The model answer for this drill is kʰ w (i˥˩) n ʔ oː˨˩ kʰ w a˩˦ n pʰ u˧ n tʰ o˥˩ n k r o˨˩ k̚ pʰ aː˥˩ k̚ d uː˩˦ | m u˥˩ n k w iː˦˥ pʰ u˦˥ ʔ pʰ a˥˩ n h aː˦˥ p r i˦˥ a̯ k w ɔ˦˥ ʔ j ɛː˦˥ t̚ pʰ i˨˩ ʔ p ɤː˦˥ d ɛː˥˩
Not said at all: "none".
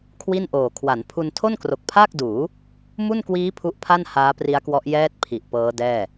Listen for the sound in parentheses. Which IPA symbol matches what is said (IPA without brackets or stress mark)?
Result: i˥˩